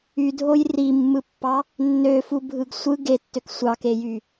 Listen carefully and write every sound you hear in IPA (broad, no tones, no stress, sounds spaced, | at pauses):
y dʱ o j r i mː ɯ pː ɑ | nː ø f u bʱ ɯ ɡ sʷ ɯ ɡ e tː ø k sʷ ɑ k e j y